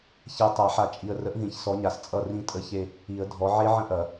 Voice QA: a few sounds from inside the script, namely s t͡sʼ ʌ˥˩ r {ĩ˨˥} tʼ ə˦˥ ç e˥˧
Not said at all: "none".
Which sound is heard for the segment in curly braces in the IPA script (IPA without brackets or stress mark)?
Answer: ĩ˥˧